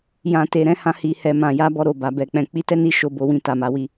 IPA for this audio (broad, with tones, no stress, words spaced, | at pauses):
jã˨ te˨ɾɛ̃˨˦hã˧ hi˨hɛ˨ mã˨ja˧ bɔ˧ ɾo˨ba˨ bɛ˨ k͡pɛ̃˨k͡pi˧ tɛ˦ni˧ ʃo˧bo˧wĩ˧ ta˨ma˨˦ wi˧